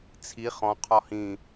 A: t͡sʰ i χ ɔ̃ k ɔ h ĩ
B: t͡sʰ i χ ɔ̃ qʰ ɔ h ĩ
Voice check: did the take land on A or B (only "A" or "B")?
B